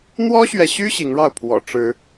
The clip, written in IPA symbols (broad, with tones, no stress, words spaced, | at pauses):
n̪wɔ˦ɕɥɛ˨ɕy˦ ɕi˨˦ŋɻɑ˥˨ʊ̯pʰwɔ̰˨˩ ʈ͡ʂɻ̩˨˦